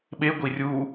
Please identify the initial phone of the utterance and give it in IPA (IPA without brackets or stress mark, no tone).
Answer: ɓ